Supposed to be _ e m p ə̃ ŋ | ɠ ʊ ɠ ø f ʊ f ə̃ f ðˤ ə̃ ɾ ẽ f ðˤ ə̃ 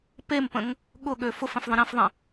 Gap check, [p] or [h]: p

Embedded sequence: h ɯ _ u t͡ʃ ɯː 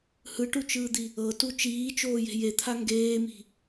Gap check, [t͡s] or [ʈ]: ʈ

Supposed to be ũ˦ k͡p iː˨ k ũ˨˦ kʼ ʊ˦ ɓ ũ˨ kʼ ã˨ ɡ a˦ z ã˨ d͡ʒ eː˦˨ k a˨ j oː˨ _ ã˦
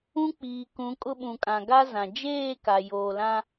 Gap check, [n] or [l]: l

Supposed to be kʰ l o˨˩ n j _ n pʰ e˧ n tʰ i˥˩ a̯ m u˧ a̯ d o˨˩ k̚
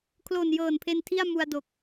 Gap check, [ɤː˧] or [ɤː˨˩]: ɤː˨˩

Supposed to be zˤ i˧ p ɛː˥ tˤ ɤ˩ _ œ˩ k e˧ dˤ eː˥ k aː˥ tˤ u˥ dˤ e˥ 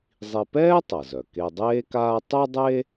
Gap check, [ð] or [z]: z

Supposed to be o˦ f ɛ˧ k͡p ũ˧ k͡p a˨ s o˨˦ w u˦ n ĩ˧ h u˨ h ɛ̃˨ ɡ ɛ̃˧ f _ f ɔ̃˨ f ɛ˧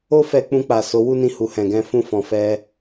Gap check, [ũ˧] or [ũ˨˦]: ũ˧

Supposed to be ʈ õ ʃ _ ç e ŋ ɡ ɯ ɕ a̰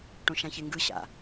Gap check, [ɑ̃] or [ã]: ã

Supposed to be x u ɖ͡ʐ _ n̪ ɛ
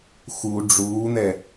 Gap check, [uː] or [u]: uː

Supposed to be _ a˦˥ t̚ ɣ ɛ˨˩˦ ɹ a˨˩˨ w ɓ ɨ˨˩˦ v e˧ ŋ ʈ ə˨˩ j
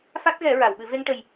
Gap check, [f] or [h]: f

